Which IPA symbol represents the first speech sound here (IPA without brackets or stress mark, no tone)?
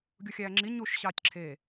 ɡʲ